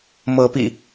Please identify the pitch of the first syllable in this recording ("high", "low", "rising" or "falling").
rising